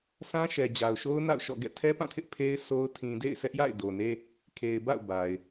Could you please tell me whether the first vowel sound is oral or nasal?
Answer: nasal